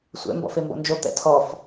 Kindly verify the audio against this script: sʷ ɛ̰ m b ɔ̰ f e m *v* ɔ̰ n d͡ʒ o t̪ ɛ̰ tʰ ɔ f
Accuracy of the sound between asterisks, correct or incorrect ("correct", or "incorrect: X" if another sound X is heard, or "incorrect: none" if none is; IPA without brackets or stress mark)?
incorrect: b